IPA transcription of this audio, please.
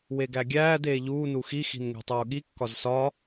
w e ɡ æ ɡʲ æː d eː ʎ uː n u x i x i̤ n ŋ e̤ tˤ uː ɠ i kː ɒ z s ɒ

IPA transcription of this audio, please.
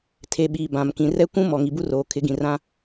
tʰ e˨ ɓ iː˨ b ã˨ m k ĩ˨ r ɛ˦ kʷ ũ˦ m ɔ˨ ŋ i˨ b u˦ r oː˨ kʰ ɪ˨˦ ɡ ĩ˨ r ã˦

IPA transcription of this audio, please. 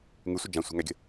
ŋ ʉ sʷ ɘ d͡ʒ ã sʷ a̤ ŋ æ ɡʲ ə̤

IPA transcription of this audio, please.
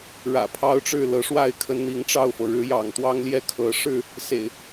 ɻ ä̰˨˩ pʰ ɑ˦ ʊ̯ ʈ͡ʂ ɻ̩˥˨ l ɤ˨˦ ʂ w a˥˨ ɪ̯ kʰ ə˨˦ n n̪ i˨˦ ŋ ʈ͡ʂ ɑ˥˨ ʊ̯ f ɤ˩ ɻ ɻ̩˨˦ j ɑ̰˨˩ ŋ t̪ w ɑ˦ ŋ l j ɛ˥˨ kʰ ɤ˨˦ ʂ ɻ̩˥˨ | s ḛ˨˩ ɪ̯

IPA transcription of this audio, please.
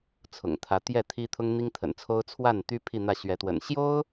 t͡sʰ ʊ̰˨˩ ŋ t̪ʰ ä˧˥ t̪ j ɛ˥˩ t̪ʰ i˥ t̪ʰ ʊ˥ ŋ n̪ i˥ ŋ t̪ʰ ə̰˨˩ n t͡sʰ o˥ ʊ̯ t͡sʰ w a˥˩ n t̪ y˥ pʰ i˥˧ n̪ ä˥˩ ɕ ɥ ɛ˧˥ t̪ w ə̰˨˩ n ɕ j o˥ ʊ̯

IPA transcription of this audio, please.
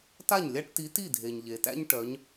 t a˥˩ ɲ lʲ a˦ ʈ t i˨˥ t i˥˩ dʱ e˩ ɲ ʎ e˩ t æ̰˦ ɲ ʈ œ˩˧ ɲ

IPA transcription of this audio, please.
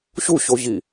ɕ u ɕ o ʑ i

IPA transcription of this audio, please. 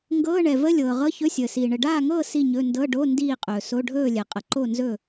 ŋ ɡ ɤː˧˥˧ ɳ ɛ˨ v ə˧˥˧ lʲ ɤː˨ ʁ ɤ˧˥˧ ç ɵ˧˥˧ sʲ əː˨ s iː˨ ɳ ə˨ ɖ aː˥˨ ŋ ɤː˥˨ s i˥˨ ɲ ɵ˧˥˧ n d ɤ˧˥˧ ɖ o˧˥˧ n d iː˥˨ qʼ ɵː˨ s o˧˥˧ ɖʱ ɵː˥˨ lʲ ɛ˨ qʼ ə˨ ǃ o˥˨ n z ɵ˥˨

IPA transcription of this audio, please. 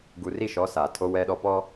ɡ u˨ r i˦˨ ʃ ɔ˨˦ s aː˨ tʰ o˦ w ɛ˦ ɗ ɔ˦ p ɔ˦

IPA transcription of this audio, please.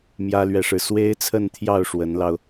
m j ä˥ l ɥ ɛ˥˧ ʂ ɻ̩˥˩ s w e˥ ɪ̯ t͡sʰ ə˥˧ n t̪ʰ j ɑ˥˩ ʊ̯ ʂ w ə˧˥ n l ɑ˧ ʊ̯

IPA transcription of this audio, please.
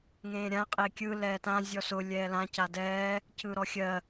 ŋ ẽː ɾʲ ã qʼ e kʲ ɯ l ɛː t ã zʲ ɔ s ʊ lʲ ɛː l ã c a d ɛː | c ɯ ɾ ɔ xʲ ɜ

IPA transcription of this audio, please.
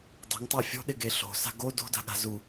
dˤ e̤ ŋ tˤ a fʲ o̤ ɗ ɪ ɡ e ɬ o̤ s a̤ ɡ o d o̤ d a̤ ɠ a̤ z u

